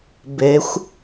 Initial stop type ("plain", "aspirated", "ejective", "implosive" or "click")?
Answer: plain